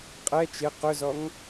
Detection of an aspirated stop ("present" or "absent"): absent